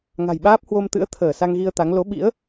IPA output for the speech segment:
ŋ a̤˨˩ j ɓ aː˦˥ p̚ h w o˧ m t̪ ɨ̰˧˥ ə̯ t̪ʰ əː˧˩ s a˧ ŋ ɣ i˧ ə̯ t̪ a˨˦ ŋ l o˨˦ ɓ ḭ˧˥ ə̯

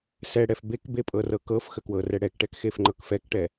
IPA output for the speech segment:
s ɛ ɽ ɛ f b e k b e pʼ ɤ r ɤ k ɤ f x ə k w ɤ r ɛ ɽ ɛ k ʈ ɛ k x e f ŋ͡ǃ ɤ k f ɛ k ʈ ɛ

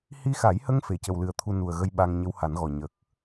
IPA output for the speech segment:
h i˧ x a˨˩˦ j h ə˧ ŋ f e˨˩˦ c ə˨˩ w l ɨ˨˩ ə̯ t̪ʰ u˧ n u˨˩ ə̯ ɣ ə˧ j ɓ a˧ ŋ ɲ ə˧˥ w h a˨˩˦ n ɣ ɔ˨˩ ɲ ə˨˩ k̚

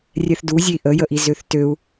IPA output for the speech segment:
rʲ ɛ θ d u zʲ e i̯ ʔ ə j ə ʔ i z ø θ t ø u̯

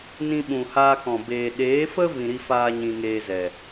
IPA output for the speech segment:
n ĩ˧ ɓ ũ˨ h aː˧ k ɔ̃˨ b eː˨ ɗ eː˨˦ f ə˦ v ĩ˧ ɾ i˦ f aː˦ ɲ ĩ˧ ŋ eː˧ z ɛ˨

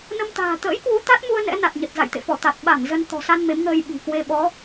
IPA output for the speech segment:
n ə˧ m t̪ a̤ː˨˩ t̪ ə̰ː˧˥ j k w u˨˦ t̪ a˦˥ t̚ m u˧ ə̯ n ɛ̰˧˥ n a˨˩ t̚ ɲ ə˨˩ t̚ z a̰˧˨ j t̪ ḛ˧˨ f ɔ˧˩ t̪ a˨˩ t̚ ɓ a˧˩ ŋ z ə˧ n t̪ ɔ̤˨˩ s a˧ n m e˨˦ m ŋ əː˧ j ɓ i̤˨˩ k w e˧ ɓ ɔ˨˦

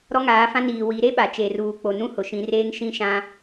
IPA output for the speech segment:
ɾ ɔ˦ ŋ aː˨˦ f ã˦ n iː˨ w i˨˦ ɾ e˦ ɓ a˨ t͡ʃ eː˨ r uː˨ k͡p o˨ n ũ˦ h ʊ˨ ʃ ĩ˨˦ r eː˦ ŋ ʃ ĩ˦ ʃ ã˦

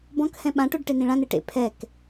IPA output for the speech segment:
b ɔ̃ k h ɛ̃ ɓ ã ʈ o ɖ ʈ e n ĩ ɭ ã n e ʈ ḛ pʰ ɛ k

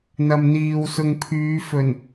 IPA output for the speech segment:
n̪ ɐ˨ m n̪ iː˨ w s ʊ˨ ŋ pʰ yː˨˧ f ɵ˨˩ n

